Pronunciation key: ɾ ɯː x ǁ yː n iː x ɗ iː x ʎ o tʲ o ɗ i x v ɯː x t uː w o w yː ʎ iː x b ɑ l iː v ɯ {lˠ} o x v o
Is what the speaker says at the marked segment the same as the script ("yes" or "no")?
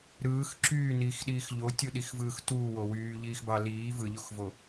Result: no